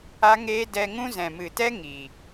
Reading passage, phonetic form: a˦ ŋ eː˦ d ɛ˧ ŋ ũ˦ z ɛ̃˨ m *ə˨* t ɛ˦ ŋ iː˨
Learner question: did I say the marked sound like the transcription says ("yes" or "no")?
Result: no